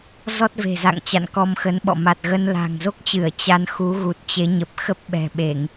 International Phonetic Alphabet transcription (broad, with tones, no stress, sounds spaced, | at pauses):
z ɔ˦˥ t̚ v e̤˨˩ z a̰˧˨ ŋ t͡ɕ a̰˧˨ n k ɔ˧ m x ə˨˦ n ɓ ɔ̰˧˨ m a˨˩ t̚ ɣ ə˧ n l a̤˨˩ ŋ z o˦˥ k̚ t͡ɕ ɨ˧˩ ə̯ t͡ɕ a˧ n x u˨˦ ɣ u˨˩ t̚ t͡ɕ e˨˦ ɲ ə˨˩ p̚ x ə˦˥ p̚ ɓ ɛ̤˨˩ ɓ e˧˩˨ ŋ